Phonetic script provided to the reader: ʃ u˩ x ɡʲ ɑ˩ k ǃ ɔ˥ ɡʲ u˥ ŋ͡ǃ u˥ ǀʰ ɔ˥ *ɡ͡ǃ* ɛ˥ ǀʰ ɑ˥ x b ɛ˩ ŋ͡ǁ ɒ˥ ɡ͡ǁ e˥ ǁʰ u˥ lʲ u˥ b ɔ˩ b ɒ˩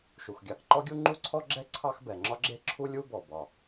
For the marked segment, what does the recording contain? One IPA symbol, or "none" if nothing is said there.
ɡ͡ǁ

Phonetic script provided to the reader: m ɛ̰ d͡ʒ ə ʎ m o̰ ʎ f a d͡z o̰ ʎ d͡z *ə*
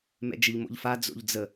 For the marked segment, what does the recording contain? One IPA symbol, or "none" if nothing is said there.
ə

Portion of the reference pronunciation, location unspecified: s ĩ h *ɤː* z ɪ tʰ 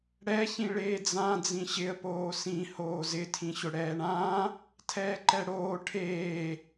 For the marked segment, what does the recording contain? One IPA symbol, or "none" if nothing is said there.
oː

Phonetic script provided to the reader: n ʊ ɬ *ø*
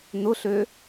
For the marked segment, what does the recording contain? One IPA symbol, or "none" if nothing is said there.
ø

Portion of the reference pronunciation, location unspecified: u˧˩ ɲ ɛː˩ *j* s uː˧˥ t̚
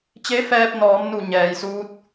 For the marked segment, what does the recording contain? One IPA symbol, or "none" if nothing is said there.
j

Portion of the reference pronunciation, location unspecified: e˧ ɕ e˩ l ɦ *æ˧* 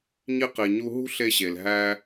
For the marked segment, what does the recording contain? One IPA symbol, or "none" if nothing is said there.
æ˧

